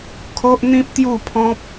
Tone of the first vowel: high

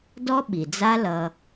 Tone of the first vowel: high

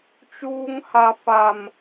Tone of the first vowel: high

